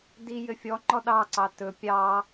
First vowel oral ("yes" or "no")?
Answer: yes